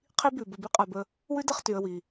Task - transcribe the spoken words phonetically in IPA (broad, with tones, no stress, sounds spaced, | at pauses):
qʰ i˧ b ʉ˨ b ə˨ b i˦ qʼ a˨ b ə˧ | w ʉ˦ d ə˦˨ χ t y˨ ə̯ w i˨